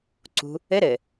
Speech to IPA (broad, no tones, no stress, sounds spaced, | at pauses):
ǀ ṳ | ɘ ɾ ɘ